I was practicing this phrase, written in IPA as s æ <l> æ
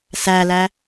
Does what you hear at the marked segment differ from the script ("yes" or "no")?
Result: no